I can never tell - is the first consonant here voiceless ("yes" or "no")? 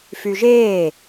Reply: yes